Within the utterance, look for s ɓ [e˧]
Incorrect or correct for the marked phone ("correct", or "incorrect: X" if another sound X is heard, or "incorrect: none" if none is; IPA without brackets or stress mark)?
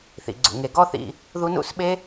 incorrect: e˦